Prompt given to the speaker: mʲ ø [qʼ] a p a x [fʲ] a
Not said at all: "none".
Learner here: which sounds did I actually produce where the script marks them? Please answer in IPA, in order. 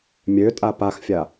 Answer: tʼ, fʲ

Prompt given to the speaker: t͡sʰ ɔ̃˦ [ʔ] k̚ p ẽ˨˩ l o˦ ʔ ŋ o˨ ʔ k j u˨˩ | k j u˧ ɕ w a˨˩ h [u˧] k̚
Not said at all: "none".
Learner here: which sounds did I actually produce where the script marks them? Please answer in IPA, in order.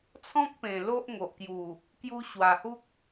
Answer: none, u˦

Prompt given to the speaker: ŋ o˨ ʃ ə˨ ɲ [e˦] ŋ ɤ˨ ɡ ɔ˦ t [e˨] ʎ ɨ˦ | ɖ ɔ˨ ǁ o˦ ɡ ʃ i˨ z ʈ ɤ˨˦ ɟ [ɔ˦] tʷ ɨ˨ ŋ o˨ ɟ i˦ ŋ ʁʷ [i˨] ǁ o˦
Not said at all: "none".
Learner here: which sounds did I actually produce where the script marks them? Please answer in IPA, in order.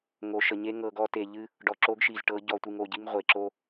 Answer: e˦, e˨, ɔ˨, e˨

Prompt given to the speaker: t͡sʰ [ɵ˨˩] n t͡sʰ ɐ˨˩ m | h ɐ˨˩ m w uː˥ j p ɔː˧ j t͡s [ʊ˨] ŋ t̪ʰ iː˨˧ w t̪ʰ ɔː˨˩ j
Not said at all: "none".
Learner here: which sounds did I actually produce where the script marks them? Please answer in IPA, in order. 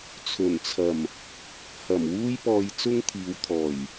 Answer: ɵ˨˩, ʊ˥

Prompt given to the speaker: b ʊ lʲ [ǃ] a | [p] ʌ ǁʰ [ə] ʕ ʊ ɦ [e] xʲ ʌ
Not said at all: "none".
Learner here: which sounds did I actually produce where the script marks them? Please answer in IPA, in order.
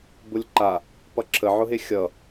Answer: ǃ, p, ə, e

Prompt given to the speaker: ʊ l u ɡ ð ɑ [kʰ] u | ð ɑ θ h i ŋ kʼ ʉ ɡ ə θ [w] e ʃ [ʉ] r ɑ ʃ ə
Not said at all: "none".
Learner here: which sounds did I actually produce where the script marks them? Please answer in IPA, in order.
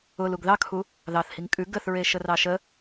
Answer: kʰ, ɹ, ə

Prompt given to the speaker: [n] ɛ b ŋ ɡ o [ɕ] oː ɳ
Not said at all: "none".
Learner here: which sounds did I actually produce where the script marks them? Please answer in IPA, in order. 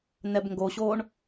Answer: n, ɕ

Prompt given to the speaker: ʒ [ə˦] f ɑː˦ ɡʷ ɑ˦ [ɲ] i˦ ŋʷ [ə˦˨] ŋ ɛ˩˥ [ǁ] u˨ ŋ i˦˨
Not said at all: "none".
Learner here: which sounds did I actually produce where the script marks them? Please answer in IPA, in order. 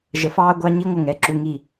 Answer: ə˨, ɲ, ə˦˨, ǁ

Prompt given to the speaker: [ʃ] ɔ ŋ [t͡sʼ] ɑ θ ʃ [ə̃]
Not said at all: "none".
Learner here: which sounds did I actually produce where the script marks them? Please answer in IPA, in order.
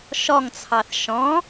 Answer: ʃ, t͡sʰ, ɔ̃

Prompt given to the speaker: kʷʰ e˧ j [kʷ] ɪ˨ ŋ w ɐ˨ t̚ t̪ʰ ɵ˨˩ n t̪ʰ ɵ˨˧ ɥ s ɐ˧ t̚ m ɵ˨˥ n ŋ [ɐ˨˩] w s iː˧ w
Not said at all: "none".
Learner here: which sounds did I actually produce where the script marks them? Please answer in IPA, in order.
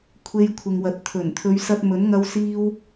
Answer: kʷʰ, ɐ˧

